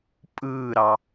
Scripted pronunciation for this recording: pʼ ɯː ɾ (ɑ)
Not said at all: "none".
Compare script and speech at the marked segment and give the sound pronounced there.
ɑ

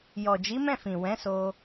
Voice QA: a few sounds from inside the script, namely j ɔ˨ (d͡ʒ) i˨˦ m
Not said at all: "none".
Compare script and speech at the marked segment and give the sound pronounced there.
d͡ʒ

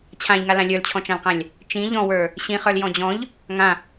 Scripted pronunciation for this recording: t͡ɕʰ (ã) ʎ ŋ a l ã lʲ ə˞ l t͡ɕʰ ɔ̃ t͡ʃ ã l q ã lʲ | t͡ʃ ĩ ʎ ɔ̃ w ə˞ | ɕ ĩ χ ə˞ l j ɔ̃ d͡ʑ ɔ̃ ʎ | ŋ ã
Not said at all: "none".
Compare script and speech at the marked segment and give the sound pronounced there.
ã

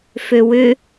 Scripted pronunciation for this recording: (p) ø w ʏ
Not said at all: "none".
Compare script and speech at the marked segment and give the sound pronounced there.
f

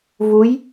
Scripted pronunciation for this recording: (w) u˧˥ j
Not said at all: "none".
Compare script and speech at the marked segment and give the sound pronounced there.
v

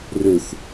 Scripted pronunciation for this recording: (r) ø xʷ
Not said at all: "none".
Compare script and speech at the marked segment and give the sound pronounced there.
r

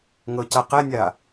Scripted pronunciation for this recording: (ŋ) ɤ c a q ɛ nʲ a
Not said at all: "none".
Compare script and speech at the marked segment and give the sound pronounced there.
ŋ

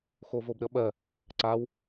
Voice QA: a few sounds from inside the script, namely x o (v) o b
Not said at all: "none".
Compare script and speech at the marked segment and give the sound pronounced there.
v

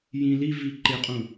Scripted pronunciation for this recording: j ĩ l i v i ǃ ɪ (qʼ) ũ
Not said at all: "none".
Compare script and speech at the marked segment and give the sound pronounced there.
qʼ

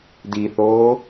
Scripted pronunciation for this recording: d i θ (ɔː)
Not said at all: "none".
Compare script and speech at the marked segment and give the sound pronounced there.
oː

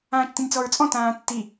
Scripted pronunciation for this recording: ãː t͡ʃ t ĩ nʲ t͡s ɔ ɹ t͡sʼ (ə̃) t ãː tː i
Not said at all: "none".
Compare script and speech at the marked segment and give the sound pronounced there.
ɔ̃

